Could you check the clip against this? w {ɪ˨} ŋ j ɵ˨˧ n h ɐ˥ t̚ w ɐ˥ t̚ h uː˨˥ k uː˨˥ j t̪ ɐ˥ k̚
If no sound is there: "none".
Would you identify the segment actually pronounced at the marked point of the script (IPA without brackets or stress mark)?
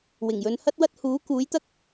ɪ˨˩